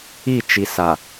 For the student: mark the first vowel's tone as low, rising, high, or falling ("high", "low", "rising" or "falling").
falling